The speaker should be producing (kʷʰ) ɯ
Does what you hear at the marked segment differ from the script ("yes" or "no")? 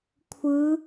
no